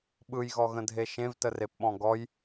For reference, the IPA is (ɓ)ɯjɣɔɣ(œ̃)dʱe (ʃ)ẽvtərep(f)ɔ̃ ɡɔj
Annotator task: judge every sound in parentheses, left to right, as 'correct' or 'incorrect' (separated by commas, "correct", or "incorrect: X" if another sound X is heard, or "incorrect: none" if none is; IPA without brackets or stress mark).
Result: correct, incorrect: ə̃, correct, incorrect: ɓ